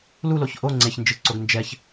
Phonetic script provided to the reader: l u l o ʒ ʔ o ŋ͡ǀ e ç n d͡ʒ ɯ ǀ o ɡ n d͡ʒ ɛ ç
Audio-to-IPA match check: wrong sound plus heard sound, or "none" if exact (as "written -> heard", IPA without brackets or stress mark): ʒ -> ç